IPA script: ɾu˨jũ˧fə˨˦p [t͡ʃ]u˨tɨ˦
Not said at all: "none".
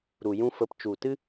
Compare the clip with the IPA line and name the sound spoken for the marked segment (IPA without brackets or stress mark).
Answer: t͡ʃ